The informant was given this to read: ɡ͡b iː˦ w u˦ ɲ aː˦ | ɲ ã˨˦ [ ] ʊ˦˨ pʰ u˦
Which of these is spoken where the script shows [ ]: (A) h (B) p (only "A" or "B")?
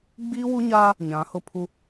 A